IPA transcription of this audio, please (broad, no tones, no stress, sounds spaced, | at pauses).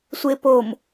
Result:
sʷ e p o m